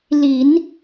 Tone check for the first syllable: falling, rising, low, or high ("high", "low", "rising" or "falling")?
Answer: low